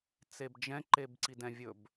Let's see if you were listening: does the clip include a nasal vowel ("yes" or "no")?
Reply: yes